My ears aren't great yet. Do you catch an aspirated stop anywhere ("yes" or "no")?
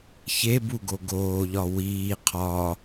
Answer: yes